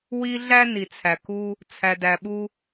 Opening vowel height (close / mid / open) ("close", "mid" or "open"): close